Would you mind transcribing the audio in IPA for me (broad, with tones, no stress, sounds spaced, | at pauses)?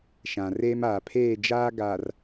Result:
ʃ ã˨ r eː˦ m aː˨ pʰ eː˦˨ d͡ʒ aː˦ ɡ aː˨ r